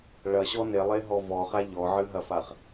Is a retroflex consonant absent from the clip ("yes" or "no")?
no